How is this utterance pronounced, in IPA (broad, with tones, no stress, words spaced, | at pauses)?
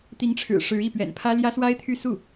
t̪i˧˥ŋʈ͡ʂʰɻ̩˨˩ ʂɻ̩˧˥i˥˩pɥɛ̰˨˩npʰä˥ ljä˥swa˥ɪ̯t̪ʰy˥˧ su˥˩